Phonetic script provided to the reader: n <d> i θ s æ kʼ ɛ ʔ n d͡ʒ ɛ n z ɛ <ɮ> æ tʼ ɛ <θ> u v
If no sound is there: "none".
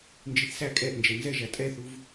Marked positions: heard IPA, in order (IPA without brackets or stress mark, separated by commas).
d͡ʒ, ʒ, θ